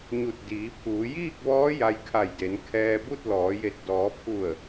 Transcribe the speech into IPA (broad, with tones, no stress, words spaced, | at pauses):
ɲu˧˩t̚ diː˩˧pʰuː˩˧ jiː˥˨k̚ʋɔː˧˥ ja˧jkʰa˧˩jde˩˧n kʰɛː˧bu˥˨t̚ lɔː˩˧je˧˩t̚ dɔː˩˧pʰu˧˩ə̯